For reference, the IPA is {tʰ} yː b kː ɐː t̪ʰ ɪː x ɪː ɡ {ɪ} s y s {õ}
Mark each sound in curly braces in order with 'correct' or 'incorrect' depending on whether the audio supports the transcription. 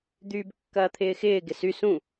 incorrect: d̪, correct, incorrect: ũ

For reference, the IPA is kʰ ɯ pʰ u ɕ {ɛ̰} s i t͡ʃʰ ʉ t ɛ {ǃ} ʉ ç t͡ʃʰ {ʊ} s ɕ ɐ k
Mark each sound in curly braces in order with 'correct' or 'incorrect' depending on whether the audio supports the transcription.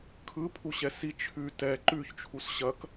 incorrect: ɛ, correct, incorrect: u

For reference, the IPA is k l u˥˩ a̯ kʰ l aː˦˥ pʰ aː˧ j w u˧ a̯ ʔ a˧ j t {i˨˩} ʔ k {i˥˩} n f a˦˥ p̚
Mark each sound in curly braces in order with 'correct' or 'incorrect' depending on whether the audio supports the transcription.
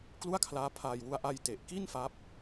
incorrect: e˨˩, correct

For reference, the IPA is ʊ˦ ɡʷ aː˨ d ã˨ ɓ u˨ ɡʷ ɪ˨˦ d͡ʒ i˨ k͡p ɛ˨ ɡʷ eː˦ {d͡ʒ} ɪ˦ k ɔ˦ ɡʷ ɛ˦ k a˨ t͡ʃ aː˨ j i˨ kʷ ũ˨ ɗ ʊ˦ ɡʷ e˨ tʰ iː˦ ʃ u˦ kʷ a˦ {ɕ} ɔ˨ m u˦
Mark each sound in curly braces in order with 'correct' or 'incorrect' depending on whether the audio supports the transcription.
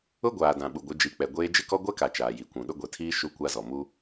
correct, incorrect: z

